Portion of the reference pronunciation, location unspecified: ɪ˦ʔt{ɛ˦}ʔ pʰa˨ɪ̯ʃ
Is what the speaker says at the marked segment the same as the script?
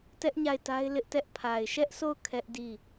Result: yes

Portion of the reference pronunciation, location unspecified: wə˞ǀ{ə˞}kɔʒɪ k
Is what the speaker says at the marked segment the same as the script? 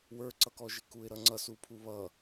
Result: no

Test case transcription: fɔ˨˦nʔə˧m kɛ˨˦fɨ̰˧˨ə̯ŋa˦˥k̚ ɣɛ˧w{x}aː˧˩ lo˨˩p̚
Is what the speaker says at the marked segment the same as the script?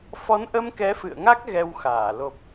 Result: yes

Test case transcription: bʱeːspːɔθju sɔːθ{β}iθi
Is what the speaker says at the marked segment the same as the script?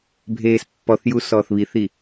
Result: yes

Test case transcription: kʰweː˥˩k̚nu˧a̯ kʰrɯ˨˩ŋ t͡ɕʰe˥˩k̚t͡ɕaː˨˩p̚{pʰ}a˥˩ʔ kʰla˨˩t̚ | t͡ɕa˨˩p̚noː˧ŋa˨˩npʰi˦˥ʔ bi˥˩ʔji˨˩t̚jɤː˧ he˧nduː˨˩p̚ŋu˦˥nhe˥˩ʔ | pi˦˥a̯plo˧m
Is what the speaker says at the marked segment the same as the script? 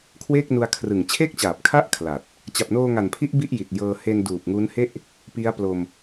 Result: no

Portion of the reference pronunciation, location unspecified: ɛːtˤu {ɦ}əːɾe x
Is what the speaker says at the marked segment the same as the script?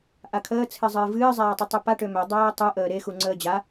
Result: no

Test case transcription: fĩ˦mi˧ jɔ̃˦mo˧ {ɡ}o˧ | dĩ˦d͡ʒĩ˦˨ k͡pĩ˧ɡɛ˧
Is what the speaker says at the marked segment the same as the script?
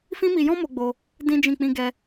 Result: no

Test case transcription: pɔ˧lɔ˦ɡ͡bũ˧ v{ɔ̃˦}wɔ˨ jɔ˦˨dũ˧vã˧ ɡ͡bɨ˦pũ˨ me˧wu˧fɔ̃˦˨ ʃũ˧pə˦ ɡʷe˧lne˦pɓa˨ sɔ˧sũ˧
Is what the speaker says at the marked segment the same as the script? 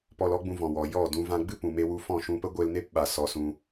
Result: no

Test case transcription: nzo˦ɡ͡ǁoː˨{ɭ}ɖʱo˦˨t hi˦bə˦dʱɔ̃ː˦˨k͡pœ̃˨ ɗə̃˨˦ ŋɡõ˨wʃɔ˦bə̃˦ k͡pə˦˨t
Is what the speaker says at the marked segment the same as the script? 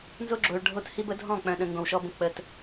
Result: yes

